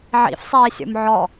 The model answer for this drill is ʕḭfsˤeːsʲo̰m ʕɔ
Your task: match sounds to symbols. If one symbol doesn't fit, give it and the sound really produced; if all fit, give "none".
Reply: none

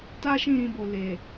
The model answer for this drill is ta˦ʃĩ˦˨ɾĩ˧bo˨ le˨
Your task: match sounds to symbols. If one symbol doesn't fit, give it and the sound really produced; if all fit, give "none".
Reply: none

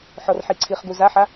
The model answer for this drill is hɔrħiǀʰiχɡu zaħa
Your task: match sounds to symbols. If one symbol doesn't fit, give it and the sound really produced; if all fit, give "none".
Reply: h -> ħ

